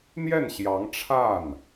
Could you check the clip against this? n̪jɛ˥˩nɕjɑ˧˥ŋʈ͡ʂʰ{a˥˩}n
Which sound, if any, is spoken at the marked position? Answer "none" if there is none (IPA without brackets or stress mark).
a˥˩